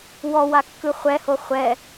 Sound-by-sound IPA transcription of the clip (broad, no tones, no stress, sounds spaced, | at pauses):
w ɔ w a kː ɯ χʷ ɛ h o χʷ ɛ